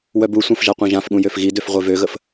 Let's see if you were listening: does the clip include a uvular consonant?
yes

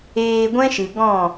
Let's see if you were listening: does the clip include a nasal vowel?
yes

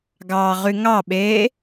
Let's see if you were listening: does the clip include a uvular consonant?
yes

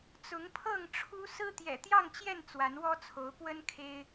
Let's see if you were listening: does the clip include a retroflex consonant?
yes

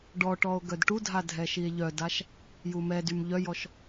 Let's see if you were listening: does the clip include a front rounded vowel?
yes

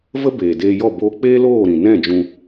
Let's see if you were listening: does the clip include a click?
no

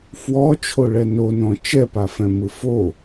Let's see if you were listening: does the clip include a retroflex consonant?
yes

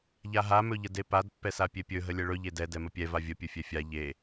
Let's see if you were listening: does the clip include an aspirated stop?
no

